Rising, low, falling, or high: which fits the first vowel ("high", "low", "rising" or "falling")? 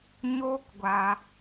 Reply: high